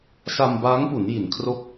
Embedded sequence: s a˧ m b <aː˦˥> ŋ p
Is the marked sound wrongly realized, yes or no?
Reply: no